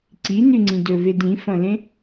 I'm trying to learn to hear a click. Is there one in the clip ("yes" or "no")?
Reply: yes